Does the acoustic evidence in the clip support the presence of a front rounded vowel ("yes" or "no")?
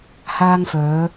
yes